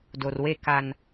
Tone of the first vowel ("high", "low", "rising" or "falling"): low